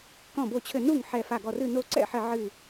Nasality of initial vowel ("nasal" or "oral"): nasal